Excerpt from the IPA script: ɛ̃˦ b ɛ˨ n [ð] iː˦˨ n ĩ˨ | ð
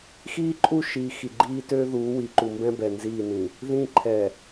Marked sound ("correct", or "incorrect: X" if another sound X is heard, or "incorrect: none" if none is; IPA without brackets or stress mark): incorrect: z